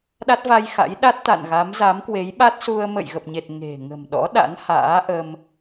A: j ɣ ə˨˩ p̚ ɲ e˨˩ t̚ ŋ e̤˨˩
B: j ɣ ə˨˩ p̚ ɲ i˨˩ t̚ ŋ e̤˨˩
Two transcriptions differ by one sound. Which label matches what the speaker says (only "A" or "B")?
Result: A